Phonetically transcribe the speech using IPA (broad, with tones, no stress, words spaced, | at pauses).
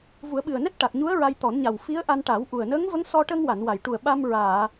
vu˨˩˦ə̯ɓɨ˨˩ə̯nɛ˦˥t̚ ʈa˨˩k̚ɲu˧˥ə̯ ɹa˧jt̪ɔ˨˩˦nɲa˨˩w fi˧˥ə̯ʔa˧nʈa˨˩˦wʔu˨˩ə̯ nə˧˥ŋvə˧˥ŋsɔ˧ ʈə˧ŋwa˨˩˨n wa˨˩˨jʈu˨˩ə̯ɓa˧m ɹaː˨˩˨